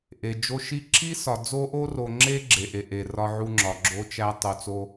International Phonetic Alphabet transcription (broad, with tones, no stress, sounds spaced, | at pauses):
ʔ e˨ d͡ʒ o˦ ʃ i˦ ǁ i˦ s ɒ˨ d͡z o˦ ʔ o˦ r o˨ ŋ͡ǁ e˦ ɡ͡ǁ e˨ ʔ e˨ ʔ e˨ r ɒ˦ ʕ u˦ ŋ͡ǁ ɒ˨ ɡ͡ǁ o˦ t͡ʃ æ˦ tˤ o˨ t͡s o˦